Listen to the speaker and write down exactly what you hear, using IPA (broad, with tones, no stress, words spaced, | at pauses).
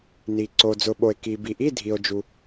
ni˩ ǀo˩ d͡zʊ˩ɓo˩e̯ ki˩bi˩ʔi˧˥˧dʱi˩o̯ d͡ʒu˩